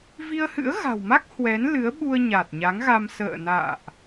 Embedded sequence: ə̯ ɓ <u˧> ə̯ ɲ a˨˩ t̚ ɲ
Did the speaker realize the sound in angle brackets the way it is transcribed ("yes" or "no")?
yes